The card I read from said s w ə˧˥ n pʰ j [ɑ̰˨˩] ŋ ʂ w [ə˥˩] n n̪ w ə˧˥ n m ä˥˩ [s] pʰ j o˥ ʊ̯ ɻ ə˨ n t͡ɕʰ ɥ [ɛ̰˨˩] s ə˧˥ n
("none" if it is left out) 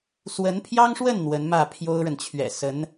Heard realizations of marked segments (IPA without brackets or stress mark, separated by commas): ɑ˥, ə˥˩, none, ɛ̰˨˩